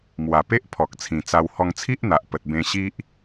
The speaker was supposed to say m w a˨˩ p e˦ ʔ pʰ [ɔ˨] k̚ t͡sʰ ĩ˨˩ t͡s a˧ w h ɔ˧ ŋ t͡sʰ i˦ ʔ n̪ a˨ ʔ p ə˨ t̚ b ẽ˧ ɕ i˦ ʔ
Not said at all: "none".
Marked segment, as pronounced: ɔ˨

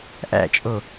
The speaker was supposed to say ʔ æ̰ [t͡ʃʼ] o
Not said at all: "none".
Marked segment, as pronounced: t͡ʃʼ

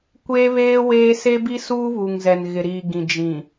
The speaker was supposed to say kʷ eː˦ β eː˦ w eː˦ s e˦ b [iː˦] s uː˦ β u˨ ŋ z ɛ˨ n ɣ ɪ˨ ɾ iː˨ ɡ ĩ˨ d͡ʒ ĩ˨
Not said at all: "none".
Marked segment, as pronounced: i˦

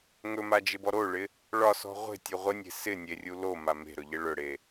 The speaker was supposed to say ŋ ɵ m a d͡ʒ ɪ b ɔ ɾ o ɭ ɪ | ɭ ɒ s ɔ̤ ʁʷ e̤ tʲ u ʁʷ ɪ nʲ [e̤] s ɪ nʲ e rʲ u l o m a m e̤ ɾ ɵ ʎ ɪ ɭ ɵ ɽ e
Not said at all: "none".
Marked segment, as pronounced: e̤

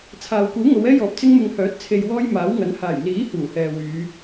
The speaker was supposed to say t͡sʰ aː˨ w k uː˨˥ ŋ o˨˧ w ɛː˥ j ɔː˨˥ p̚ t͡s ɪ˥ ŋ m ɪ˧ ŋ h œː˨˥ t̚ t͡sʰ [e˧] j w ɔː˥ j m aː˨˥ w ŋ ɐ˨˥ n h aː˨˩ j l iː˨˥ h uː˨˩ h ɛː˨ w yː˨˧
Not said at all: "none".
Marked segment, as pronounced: e˧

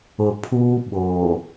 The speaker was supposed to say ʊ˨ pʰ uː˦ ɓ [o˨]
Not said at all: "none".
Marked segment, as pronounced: o˨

